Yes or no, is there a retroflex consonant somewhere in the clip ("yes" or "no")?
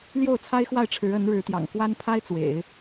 yes